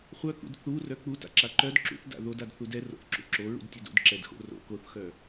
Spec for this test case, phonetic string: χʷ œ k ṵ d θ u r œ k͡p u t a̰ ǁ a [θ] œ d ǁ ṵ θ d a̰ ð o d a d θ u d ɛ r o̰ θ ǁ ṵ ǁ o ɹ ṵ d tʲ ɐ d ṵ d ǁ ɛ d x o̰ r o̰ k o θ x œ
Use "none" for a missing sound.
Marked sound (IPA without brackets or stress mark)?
ǃ